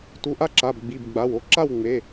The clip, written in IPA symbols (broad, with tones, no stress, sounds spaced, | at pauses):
t u˩˧˩ ʔ a˥˨ ǁ a˩˧˩ b ɡ͡b i˩˧˩ b ɡ͡b a˩˧˩ w o˥˨ ǁ a˥˨ w ŋ͡m e˩˧˩